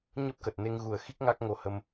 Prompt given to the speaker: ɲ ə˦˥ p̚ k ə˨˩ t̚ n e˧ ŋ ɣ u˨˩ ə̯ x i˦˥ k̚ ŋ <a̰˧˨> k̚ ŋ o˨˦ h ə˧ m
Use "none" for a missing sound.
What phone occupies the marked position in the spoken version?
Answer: a˦˥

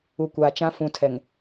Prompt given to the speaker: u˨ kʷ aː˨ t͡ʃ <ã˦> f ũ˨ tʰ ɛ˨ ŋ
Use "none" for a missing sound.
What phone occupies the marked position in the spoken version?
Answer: ã˦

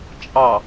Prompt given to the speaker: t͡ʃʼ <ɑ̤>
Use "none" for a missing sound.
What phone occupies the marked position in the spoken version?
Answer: ɑ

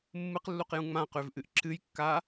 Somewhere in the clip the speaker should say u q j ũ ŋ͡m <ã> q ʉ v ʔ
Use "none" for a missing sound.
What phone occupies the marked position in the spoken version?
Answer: ã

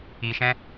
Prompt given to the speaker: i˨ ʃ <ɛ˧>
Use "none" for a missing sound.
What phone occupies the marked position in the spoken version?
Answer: ɛ̃˧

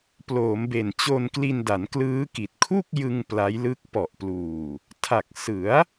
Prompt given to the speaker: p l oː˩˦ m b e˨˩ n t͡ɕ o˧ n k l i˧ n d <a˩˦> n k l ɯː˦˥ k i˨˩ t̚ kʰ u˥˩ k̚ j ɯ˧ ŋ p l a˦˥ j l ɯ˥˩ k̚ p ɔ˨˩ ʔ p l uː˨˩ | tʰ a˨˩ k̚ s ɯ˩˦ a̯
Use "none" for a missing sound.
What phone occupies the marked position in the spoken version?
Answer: a˩˦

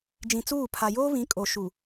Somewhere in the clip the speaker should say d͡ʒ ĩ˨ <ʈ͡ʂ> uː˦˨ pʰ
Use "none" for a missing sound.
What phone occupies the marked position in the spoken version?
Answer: t͡s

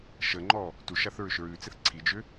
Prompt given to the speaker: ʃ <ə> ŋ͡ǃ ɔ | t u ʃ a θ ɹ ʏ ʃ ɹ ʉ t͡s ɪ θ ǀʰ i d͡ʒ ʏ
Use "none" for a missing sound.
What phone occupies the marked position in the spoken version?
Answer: ə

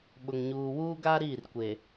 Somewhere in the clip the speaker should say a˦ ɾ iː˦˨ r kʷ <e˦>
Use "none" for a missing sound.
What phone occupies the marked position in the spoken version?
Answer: e˨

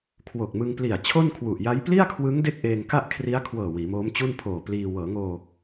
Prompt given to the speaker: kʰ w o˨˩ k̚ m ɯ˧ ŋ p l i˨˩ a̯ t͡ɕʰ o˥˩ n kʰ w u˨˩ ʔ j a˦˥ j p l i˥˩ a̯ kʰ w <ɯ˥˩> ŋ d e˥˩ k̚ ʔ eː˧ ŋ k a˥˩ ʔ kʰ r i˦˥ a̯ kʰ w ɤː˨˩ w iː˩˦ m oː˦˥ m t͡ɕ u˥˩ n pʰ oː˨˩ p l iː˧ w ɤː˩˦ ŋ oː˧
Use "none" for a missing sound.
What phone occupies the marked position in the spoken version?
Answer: ɯ˦˥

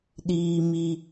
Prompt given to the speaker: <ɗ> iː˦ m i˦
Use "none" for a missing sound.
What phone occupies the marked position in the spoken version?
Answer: ɗ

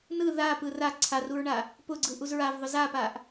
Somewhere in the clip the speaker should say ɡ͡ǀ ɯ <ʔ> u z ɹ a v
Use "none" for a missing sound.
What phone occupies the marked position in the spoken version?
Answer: ʔ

